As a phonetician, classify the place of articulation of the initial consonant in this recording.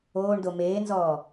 retroflex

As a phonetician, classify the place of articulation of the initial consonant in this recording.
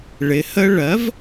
retroflex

